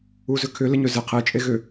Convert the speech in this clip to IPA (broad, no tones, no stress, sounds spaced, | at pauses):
u z ʏ kʰ ʏ l ɪ ɲ ø z ɪ qʰ e t͡ʃʼ e ɣ ʏ